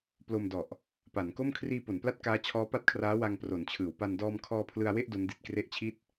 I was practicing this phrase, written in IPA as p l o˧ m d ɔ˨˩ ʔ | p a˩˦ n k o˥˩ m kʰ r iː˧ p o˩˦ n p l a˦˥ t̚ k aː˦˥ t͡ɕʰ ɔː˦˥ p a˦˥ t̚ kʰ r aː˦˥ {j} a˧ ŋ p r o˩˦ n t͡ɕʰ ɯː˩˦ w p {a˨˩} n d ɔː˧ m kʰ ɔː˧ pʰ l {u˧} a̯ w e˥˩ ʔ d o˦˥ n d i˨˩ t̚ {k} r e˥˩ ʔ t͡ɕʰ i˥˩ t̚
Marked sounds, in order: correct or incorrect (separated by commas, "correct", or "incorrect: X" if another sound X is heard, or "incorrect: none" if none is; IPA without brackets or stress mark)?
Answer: incorrect: w, incorrect: a˧, incorrect: ɯ˧, correct